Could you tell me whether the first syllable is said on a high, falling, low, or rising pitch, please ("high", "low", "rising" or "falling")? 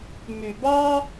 low